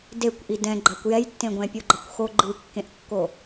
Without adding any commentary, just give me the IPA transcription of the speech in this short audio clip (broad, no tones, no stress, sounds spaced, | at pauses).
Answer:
d e kʷ ʔ i d ɛ̃ ɡ͡ǃ a kʷ j ɛ j tː ẽ ɡʷ ɛ̃ pʲ o ɡ͡ǃ ʌ kʷ x o ɡ͡ǃ ɯ kː ẽ ʔ kː o